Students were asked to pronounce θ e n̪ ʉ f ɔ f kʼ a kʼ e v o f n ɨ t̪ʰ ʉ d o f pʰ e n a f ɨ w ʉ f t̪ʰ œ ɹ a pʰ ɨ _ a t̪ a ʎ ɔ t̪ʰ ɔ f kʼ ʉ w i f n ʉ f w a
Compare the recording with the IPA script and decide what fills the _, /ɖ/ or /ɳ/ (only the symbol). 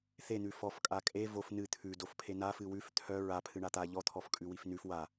ɳ